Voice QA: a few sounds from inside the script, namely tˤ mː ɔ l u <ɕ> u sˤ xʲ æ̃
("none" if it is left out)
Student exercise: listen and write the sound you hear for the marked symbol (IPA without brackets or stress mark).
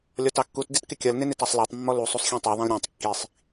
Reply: sˤ